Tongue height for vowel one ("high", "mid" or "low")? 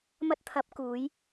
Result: low